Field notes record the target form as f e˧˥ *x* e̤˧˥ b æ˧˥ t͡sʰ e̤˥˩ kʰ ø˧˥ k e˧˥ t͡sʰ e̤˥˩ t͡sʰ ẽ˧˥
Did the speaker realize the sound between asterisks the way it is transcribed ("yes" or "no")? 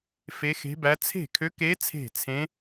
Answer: yes